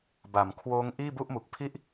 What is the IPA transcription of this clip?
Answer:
ba˩˦mkʰwoː˦˥ŋ ʔiː˥˩bu˥˩ʔmu˨˩k̚pʰi˥˩ʔ

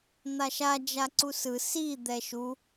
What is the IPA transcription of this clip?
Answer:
n̪aʃa d͡ʒaǀusɯ si d̪ɛʃu

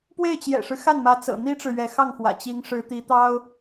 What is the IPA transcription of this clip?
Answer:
pwe˥˩ɪ̯t͡ɕjɛ̰˨˩ʂɻ̩˦ xa˥˩nmä˧˥t͡sɤ̰˨˩ n̪i˥ʈ͡ʂɻ̩˨ ɥɛ˧˥ xɑ˥˩ŋxwä̰˨˩ t͡ɕi˧˥ŋ ʂɻ̩˧˥t̪i˧˥t̪ɑ˥ʊ̯

